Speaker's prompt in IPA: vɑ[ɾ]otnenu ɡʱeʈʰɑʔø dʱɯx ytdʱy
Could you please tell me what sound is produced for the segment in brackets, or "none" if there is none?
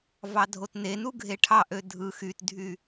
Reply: dʱ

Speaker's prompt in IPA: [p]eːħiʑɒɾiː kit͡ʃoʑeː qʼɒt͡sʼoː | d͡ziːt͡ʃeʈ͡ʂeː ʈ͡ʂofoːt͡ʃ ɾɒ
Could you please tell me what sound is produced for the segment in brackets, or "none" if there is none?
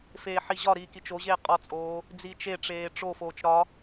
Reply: f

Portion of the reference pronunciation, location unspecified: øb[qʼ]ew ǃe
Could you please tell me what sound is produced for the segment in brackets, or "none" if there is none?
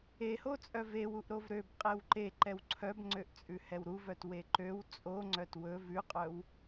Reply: qʼ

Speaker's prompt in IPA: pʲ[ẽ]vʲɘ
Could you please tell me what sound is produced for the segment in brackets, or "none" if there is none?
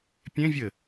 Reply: ẽ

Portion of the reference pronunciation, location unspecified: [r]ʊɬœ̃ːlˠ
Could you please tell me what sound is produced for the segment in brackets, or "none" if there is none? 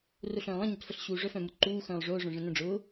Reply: r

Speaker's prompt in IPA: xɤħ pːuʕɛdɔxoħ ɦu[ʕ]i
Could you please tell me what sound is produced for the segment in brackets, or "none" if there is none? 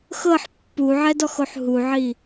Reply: ʕ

